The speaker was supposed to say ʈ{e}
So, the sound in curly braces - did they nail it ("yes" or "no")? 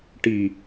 no